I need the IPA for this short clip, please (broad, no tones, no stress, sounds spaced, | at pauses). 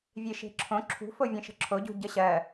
vʲ e ʃ e̤ ǁʰ õ ǁʰ ṳ f o vʲ ẽ ʃ ə̤ ǁʰ o ɟ ṳ ɟ ə ɕ ɜ